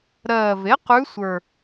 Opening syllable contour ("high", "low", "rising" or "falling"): low